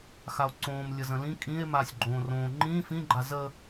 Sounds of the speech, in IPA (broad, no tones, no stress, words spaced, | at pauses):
xao̯ǀõːm lʲəzə̃lĩ kʼĩe̯ maːsʲɡ͡ǃõːrõː ŋ͡ǃĩː fĩɡ͡ǃa zə